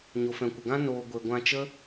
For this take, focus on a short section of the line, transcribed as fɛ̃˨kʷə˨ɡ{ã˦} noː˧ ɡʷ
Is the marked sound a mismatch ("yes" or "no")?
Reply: no